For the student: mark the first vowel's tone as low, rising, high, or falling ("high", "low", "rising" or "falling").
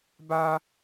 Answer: high